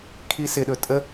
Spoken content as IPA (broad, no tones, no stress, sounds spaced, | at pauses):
kʰ i s ɪ ɗ ɵ tʼ ə